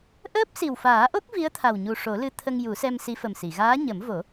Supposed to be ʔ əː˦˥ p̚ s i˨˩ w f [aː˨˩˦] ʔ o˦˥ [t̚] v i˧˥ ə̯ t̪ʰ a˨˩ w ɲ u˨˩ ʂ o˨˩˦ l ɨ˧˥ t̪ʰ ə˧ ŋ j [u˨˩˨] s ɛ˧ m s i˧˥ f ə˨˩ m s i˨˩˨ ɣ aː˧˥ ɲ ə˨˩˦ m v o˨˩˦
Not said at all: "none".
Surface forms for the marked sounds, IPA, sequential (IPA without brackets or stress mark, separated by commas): aː˨˩˦, k̚, u˨˩˦